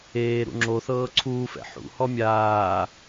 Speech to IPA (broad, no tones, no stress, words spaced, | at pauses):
eːɾṵ ŋ͡ǁoθɤː ǀʰuːfɛ̰ ħṵhɔ mʲaː